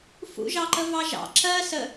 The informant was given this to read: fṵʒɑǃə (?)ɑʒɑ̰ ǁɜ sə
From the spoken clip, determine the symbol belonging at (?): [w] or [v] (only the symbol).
v